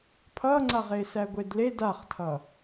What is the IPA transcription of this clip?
pʰ ʌ ŋ͡ǀ a ʁ e s æ ɡʷ e d l e d a χ tʰ ʌ

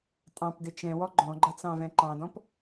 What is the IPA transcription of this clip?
tʼ ɑ̃ p d ɪ t͡ʃ ɛ̃ w ɔ ɡ͡ǃ ɔ̃ ɡ͡ǃ ʌ t͡s ɑ̃ v ɛ̃ ǃ ɑ̃ d ɔ̃ p

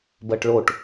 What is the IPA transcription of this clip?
b ɜ ʈ ɭ o ʈ

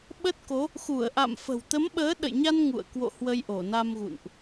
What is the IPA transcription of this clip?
ɓ ə˦˥ t̚ k o˨˦ | x u˧˩ ə̯ ʔ a̰˧˨ m f ə̤˨˩ w t̪ ə˨˦ m ɓ əː˨˦ ɗ ə̰˧˨ j ɲ a˧ n ŋ ṵ˧˨ ə̯ k w o̰˧˨ h w ə˧ j ʔ o˧˩ n a˧ m ɣ ṵ˧˨ n ʔ

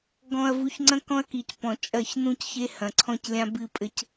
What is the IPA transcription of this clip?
ɡ ɔ̃˨ ɐ̯ v u˨˦ ç ŋ͡ǀ ɐ̃˦ k ɔ̃˦ ɐ̯ k i˨ c p ɔ̃˨ t͡ʃʼ ɐ˦˨ ç n ũ˦ c ç e˦ h ɐ̃˨ ǀʰ ɔ̃˦ c lʲ ã˦ b ɨ˦ pʼ ɘ˦ c

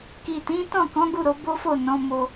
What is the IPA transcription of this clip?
k i˨ t ĩ˨˦ t ɔ̃˦˨ k ɔ̃˨˦ ɡ u˦˨ ɾ o˨˦ b o˦ f o˦˨ n ɔ̃˨˦ m o˧

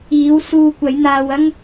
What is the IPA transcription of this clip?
iː˨˥ w s uː˧ kʷ ɐ˨˥ j n̪ aː˧ w ɐ˥ ŋ

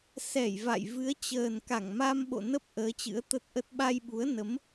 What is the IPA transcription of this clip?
s ɛ˧˩ j v a̰˧˨ j v ɨ˨˦ ə̯ t͡ɕ əː˨˩ n k a˧˩ ŋ m a˧ m ɓ o̰˧˨ n ə˦˥ p̚ ʔ əː˨˦ t͡ɕ ɨ̰˧˥ ə̯ t̪ ə˦˥ t̚ ʔ ə˦˥ t̚ ɓ a˧ j ɓ u˨˦ ə̯ n ə˨˦ m

